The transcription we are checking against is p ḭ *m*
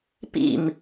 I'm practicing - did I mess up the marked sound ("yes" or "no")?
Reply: no